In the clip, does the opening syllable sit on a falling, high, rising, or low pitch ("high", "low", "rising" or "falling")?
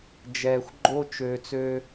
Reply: low